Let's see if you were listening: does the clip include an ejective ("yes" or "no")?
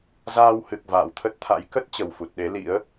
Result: no